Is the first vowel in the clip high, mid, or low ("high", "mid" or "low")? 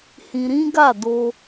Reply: high